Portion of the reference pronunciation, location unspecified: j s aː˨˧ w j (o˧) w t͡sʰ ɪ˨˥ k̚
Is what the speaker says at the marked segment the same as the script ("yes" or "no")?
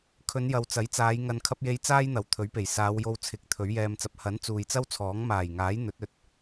yes